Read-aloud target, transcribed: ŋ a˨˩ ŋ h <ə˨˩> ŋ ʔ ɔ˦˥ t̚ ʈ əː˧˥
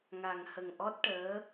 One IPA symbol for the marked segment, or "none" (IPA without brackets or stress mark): ə˨˩